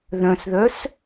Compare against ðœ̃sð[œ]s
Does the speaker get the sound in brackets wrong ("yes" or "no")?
no